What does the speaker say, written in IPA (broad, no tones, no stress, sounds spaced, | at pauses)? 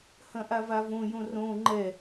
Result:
h ɐ̃ ʔ a v a v õ j õ r õ ŋ͡ǃ ɛ